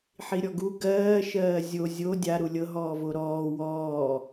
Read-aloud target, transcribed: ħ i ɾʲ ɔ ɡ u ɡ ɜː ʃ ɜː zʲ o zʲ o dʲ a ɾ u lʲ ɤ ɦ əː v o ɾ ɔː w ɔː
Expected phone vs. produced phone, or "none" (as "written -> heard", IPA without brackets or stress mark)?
əː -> ɔː